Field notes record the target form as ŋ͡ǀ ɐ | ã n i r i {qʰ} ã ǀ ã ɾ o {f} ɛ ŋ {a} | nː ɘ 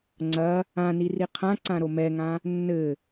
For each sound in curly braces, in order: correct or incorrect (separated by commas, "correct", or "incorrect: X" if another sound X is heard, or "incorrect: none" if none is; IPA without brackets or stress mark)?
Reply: correct, incorrect: m, incorrect: ã